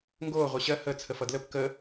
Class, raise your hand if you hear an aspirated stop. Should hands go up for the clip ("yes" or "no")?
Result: yes